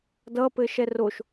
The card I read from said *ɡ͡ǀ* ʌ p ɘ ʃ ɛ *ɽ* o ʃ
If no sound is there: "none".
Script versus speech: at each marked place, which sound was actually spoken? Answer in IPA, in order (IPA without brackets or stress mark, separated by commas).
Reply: d, r